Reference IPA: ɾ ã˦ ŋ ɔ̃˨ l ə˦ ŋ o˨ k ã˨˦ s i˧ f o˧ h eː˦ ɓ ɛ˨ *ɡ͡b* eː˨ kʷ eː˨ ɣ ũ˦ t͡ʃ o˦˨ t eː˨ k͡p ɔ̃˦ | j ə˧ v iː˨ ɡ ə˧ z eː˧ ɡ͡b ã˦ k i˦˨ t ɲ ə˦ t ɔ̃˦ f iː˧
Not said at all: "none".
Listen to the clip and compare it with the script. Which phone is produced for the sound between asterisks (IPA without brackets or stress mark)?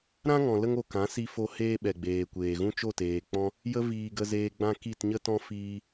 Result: ɡ͡b